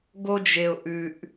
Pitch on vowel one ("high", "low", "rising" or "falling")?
high